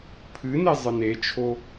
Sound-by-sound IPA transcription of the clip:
pʰɨne zˤɨnet͡ʃʰo

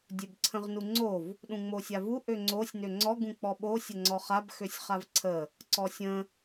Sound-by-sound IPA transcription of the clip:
dʲøbǀʰə̃ʁnuŋ͡ǀov | ɗũŋ͡mosʲavu ʔøŋ͡ǀosʲ nøŋ͡ǀɔ ɡũk͡pɔɓo sʲəŋ͡ǀɔχab xøsʲχavǀʰə | ǀɔsʲə̃

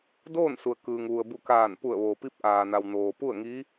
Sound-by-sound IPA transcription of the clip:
doː˥˨nsu˩ə̯ kɯː˩ŋʋu˩ə̯ bu˧˩kaː˧˩n pu˧˩ə̯ʋoː˩pi˧˥p̚ ʔaː˩na˩w noː˩pu˥˨ə̯ŋi˧˥

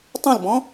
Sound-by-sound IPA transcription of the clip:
tˤũlbɔ̃

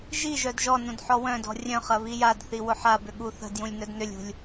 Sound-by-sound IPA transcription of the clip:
ʒi ʒœdʒɔnũd ħɔwœ̃dɔ̤ rʲœ̃χɐ βijadθi wʊħabʏ ɠuθə̤djũlʲ nœdnʏlʲṳlʲ

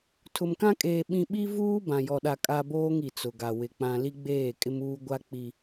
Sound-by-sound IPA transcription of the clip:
tʰʊ˨mkã˦kʼeː˨ ɓĩ˨ɓi˦vuː˦ bã˨jɔ˨ɗa˨ kʼa˦boː˦ŋi˨ t͡sʊ˨ɡa˨ wɪ˨ k͡pã˨ li˦ɡ͡beː˦˨kʼɪ˦muː˦ ɡʷa˦k͡pi˦

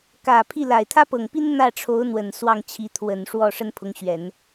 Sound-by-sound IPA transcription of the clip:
kä˨˩pʰi˥˩ la˨˩ɪ̯ t̪ʰä˥pɤ˨˩ŋpi˥n n̪ä˥˩ʈ͡ʂʰo˧˥ʊ̯ n̪wə˨˩nswɑ˥˩ŋ t͡ɕʰi˧˥t̪ʰwə˨˩n ʂwɔ˥˩ ʂə˥npʰʊ˧˥ŋɕɥɛ˨˩˦n

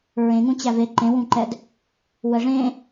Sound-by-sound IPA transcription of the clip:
ɹẽŋũ t͡ɕæve ǃẽwũǃɛd | wəʐẽ

